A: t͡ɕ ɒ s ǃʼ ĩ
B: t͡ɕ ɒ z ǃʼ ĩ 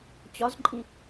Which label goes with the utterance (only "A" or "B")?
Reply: B